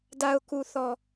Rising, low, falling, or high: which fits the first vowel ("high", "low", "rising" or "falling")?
low